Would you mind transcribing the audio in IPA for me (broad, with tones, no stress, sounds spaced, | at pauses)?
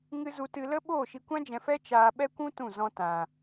ŋ ɨ˧ z u˧ t ɨ˧ l ə˦ ɓ oː˦˨ ʃ i˧ kʷ ã˦ d͡ʒ ɛ̃˧ f ɛ˦ t͡ʃ aː˧ ɓ ɛ˦ kʷ ũ˦ t ũ˦˨ z ɔ̃˦ t ã˧